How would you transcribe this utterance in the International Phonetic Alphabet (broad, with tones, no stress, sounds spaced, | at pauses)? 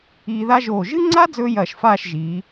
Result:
iː˧ ð a˥ ʒ oː˧˩ ʒ ɨ˥ ŋ͡ǀ a˥ d͡z ɵː˥ j ɐː˧˩ ʃ f aː˥˧ ʃ ʒ iː˩˧